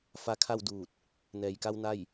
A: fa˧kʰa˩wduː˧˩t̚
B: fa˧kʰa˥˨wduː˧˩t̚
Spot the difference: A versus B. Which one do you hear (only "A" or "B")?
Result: B